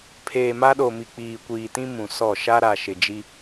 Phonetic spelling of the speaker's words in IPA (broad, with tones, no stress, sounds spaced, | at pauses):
pʰ eː˨ m a˦ ɗ o˨ m i˨ k͡p iː˨ kʷ iː˨ t ĩ˦ m ũ˨ s ɔ˦˨ ʃ a˦ ɾ a˨ ʃ ɪ˨ d͡ʒ i˦